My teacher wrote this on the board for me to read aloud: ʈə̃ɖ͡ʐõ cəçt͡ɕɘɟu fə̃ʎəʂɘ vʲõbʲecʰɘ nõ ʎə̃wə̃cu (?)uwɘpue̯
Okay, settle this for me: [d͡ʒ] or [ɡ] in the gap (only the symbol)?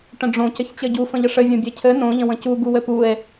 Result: ɡ